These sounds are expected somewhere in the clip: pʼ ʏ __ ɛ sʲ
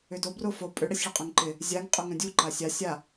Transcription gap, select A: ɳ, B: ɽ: B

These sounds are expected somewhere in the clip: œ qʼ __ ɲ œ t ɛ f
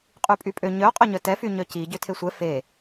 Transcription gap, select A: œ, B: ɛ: A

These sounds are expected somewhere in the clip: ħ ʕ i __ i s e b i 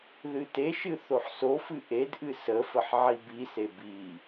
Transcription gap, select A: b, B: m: A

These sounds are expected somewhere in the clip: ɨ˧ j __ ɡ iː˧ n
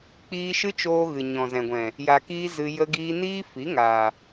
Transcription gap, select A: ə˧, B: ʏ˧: A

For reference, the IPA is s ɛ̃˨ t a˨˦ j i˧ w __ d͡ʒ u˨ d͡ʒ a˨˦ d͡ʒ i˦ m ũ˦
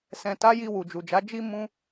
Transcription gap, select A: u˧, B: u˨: B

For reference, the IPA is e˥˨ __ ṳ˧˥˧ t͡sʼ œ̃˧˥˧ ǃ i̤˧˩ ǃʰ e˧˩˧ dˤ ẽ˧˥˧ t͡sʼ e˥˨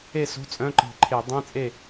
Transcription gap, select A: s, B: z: A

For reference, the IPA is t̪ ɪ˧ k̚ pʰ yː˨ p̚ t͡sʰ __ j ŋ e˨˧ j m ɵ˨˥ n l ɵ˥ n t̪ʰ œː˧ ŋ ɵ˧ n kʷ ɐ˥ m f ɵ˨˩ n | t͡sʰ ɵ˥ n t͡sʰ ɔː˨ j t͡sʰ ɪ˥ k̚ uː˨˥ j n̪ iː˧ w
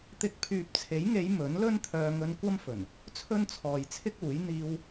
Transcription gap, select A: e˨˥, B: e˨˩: A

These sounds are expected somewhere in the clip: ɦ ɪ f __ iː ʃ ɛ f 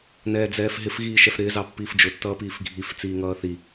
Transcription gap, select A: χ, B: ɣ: B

